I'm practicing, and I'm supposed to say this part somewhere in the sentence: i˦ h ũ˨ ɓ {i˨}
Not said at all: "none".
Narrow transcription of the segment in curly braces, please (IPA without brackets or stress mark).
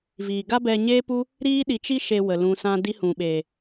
e˨